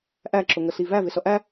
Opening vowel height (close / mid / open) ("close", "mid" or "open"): open